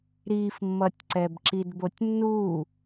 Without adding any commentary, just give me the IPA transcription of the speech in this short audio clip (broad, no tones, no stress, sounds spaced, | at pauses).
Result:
ɾ i f mː ʌ tʲ ǀ ɛ b ǁ i d b o tʲ nː u